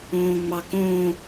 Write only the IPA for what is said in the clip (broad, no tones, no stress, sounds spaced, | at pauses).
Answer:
õː ŋ͡m ɑ k õː